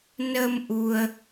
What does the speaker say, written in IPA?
n ə˧ m ʔ u˧ ə̯

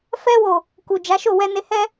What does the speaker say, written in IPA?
f ɛ˧ w o˨ | k u˨ d͡ʒ a˨˦ ʃ o˦˨ w ɛ˧ n e˧ h ɛ˦

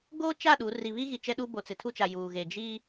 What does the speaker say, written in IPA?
ɡ oː˦ t͡ʃ a˦˨ ɗ u˨˦ r i˨ β i˦ ɣ i˨ t͡ʃ ɛ˦ ɗ u˦ b o˨ t͡s ɪ˨ tʰ u˦ t͡ʃ a˨ j uː˨ ɣ e˨ d͡ʒ i˦

